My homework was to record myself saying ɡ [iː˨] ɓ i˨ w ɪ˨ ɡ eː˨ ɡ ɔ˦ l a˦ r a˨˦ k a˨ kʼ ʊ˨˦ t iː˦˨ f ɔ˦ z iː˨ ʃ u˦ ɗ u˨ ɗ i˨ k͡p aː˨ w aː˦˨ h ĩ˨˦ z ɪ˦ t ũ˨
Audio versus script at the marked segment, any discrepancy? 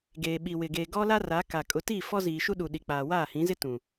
yes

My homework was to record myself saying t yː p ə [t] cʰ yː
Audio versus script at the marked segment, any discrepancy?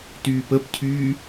yes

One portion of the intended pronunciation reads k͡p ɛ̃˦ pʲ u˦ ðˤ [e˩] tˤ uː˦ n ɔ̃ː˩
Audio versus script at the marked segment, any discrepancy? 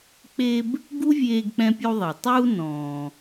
yes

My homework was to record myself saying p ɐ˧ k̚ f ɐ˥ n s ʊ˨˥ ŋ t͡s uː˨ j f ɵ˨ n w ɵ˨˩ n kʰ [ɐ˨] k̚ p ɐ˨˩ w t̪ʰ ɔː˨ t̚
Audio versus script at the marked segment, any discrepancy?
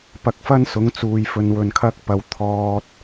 yes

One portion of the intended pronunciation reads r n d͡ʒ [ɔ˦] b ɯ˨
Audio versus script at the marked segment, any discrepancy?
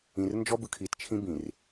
no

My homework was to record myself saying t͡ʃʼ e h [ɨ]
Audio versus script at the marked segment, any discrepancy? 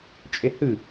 no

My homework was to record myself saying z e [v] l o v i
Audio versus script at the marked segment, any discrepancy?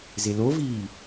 yes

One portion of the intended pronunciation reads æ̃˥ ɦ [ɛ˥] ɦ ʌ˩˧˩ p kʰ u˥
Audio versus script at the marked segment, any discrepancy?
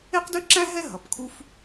no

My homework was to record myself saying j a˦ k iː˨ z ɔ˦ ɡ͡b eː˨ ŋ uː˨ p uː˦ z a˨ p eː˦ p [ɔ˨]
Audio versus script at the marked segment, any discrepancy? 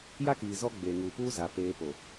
yes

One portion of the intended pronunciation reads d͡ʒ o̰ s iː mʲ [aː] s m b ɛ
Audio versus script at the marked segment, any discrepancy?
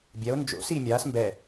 no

